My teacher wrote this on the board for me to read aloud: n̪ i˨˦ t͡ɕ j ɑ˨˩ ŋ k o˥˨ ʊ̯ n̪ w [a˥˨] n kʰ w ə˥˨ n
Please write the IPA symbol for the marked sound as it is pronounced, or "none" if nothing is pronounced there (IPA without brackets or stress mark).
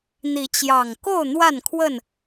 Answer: a˥˨